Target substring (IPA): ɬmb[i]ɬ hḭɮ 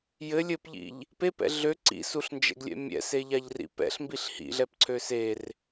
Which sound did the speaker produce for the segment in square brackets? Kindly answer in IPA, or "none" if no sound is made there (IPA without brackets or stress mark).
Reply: i